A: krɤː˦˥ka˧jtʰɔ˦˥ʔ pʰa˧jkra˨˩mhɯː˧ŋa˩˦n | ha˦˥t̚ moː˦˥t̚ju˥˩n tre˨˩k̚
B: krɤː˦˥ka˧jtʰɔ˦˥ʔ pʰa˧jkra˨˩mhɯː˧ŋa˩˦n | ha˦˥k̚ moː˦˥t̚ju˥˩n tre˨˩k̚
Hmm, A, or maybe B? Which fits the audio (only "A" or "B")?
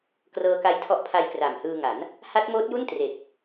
A